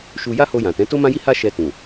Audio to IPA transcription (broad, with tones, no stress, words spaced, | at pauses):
ʃu˧ ja˦ho˧jã˨tɛ̃˨˦ to˦mã˦ji˦ha˦ ʃɛ˧tũ˨